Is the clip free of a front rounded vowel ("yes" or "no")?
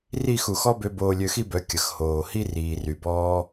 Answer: no